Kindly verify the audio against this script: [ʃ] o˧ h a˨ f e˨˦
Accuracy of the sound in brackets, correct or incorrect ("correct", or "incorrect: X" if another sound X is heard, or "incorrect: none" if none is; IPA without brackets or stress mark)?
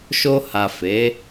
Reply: correct